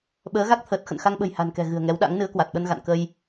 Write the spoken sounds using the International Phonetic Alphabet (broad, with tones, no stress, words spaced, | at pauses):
ɓəː˨˦ɣa˦˥k̚t̪ʰəː˨˩t̚ xə̰˧˨nxa˧ŋɓə̤˨˩j ha̤˨˩nkɛ̤˨˩ ɣɨ̤˨˩ə̯ŋɛ˨˦wɗa̰˧˥ŋ nɨ˨˦ə̯kwa˨˩t̚ɓə˧nɣa̰˧˨n kə˧j